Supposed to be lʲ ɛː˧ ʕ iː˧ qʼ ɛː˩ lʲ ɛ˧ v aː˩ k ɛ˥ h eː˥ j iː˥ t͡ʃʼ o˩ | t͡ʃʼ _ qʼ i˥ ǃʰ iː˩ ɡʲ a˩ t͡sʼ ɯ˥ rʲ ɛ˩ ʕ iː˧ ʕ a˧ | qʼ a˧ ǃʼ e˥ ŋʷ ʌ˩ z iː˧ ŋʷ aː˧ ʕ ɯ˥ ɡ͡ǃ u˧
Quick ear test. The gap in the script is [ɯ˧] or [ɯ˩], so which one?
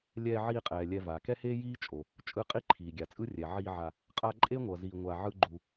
ɯ˧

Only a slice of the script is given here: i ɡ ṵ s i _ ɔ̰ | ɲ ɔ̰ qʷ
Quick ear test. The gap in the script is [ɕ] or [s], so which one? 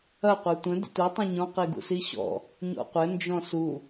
ɕ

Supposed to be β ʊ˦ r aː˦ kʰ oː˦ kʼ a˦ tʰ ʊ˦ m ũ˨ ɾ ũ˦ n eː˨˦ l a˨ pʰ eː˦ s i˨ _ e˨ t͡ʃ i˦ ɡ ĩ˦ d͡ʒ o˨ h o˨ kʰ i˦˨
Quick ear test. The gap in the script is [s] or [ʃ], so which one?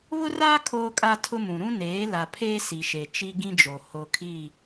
ʃ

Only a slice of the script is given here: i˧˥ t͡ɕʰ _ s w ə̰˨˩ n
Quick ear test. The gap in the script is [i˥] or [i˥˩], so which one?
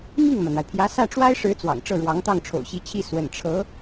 i˥˩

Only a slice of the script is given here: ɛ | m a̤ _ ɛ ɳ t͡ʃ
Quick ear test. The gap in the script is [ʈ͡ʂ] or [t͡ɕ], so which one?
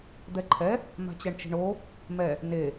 t͡ɕ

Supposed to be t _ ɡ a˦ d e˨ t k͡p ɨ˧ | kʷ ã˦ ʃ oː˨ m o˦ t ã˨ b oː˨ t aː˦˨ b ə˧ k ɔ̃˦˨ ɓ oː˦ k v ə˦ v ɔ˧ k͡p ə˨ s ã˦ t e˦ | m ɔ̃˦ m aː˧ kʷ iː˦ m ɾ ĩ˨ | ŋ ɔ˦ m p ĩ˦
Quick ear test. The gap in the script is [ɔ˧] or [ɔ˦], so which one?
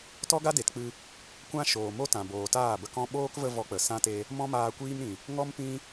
ɔ˦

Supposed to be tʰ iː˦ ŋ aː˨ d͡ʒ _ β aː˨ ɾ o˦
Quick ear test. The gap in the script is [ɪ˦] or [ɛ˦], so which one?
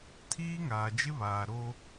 ɪ˦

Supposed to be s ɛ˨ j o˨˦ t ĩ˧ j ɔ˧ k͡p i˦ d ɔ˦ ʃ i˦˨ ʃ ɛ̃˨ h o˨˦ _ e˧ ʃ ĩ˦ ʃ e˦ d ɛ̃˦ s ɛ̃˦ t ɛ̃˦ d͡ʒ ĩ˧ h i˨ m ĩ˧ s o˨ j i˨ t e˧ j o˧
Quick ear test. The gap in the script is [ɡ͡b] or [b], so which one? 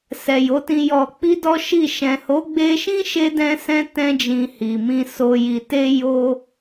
ɡ͡b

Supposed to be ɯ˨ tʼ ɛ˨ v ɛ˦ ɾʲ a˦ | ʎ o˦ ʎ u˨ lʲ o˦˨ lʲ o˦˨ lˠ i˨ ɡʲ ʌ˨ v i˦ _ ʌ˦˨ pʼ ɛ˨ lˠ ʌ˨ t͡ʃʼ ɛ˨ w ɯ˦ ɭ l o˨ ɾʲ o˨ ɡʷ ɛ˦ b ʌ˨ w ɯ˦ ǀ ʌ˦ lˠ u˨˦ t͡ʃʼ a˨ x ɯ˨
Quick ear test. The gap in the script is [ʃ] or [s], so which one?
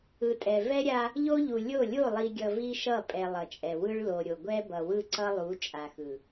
ʃ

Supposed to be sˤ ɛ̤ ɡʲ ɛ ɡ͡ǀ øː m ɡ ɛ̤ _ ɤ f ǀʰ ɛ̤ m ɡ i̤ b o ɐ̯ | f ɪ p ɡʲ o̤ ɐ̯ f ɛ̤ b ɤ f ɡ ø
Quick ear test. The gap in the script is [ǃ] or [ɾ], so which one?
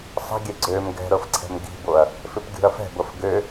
ɾ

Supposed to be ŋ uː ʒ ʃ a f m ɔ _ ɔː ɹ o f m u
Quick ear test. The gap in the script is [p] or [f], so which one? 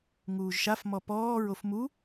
p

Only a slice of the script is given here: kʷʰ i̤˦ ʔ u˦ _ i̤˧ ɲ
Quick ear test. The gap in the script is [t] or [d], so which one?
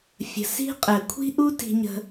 t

